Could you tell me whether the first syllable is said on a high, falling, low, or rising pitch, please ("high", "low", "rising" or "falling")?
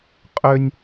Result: high